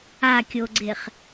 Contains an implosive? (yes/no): no